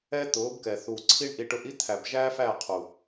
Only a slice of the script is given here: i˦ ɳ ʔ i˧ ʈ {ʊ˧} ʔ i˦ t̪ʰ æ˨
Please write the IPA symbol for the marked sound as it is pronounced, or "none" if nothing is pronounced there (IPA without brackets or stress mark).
ʊ˧